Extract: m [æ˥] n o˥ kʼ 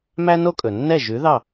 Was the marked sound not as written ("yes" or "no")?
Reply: no